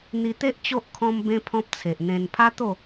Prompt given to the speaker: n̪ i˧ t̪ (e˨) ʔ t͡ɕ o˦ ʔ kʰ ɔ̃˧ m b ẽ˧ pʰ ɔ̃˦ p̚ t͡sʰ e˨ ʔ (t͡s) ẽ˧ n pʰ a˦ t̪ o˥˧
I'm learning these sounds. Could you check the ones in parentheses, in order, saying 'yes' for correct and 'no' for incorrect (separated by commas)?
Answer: no, no